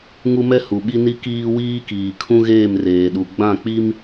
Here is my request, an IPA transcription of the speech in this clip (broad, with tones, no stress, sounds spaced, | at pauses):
ŋ u˦ m ɛ˦ h u˨ ɓ i˦ n i˦ k iː˦ w iː˦ k iː˨ kʰ ũ˦ ɣ eː˦˨ m r eː˨ ɗ u˨ ɡ͡b ã˦˨ k͡p i˦ m